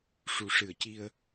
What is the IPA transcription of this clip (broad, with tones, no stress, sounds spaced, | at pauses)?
ʂ u˨˩ ʂ ɨ˨˩ ə̯ c i˧ ə̯